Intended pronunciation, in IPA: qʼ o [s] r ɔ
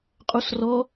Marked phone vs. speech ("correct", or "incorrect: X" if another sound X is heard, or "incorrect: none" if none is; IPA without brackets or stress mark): correct